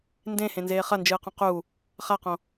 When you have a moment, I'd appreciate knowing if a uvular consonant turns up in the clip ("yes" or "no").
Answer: yes